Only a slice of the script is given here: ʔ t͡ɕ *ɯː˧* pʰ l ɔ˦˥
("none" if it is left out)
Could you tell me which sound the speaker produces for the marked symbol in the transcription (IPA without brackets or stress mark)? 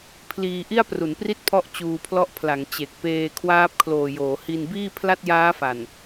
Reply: uː˧